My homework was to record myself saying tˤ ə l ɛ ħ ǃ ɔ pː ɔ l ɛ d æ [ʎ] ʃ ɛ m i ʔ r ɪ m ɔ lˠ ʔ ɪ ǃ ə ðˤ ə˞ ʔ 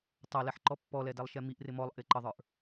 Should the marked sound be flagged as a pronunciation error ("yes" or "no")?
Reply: yes